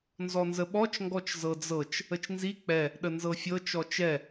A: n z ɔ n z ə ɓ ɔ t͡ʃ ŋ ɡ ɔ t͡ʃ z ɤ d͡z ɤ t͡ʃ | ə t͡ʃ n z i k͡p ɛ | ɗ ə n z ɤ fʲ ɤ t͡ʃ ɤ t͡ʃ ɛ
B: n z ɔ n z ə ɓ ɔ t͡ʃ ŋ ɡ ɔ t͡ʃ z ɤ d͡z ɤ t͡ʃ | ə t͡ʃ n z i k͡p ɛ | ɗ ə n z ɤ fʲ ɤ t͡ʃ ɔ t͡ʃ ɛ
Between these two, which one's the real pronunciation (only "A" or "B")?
B